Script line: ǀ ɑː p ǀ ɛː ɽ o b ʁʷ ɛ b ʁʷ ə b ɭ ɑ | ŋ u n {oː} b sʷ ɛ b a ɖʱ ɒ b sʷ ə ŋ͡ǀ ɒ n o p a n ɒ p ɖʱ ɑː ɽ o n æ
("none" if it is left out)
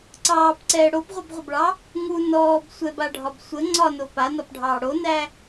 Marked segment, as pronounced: ɔː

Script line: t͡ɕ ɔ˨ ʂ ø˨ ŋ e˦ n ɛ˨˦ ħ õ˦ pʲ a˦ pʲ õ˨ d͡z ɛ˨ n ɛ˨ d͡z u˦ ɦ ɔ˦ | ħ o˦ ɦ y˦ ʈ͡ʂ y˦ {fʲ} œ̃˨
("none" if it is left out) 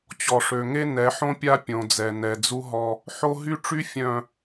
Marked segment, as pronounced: fʲ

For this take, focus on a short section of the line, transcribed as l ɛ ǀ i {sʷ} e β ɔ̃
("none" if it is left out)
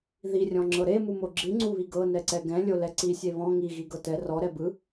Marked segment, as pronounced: sʲ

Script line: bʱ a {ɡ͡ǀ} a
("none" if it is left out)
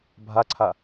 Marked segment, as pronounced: ǀʰ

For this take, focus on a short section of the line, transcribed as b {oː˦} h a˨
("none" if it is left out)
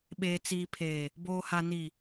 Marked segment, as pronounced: oː˨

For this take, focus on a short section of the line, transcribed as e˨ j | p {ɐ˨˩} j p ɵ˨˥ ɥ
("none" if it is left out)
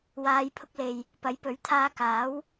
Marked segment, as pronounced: ɐ˨˥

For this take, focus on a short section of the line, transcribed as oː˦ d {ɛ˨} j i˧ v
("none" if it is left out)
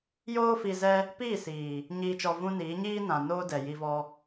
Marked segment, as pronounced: ɛ˨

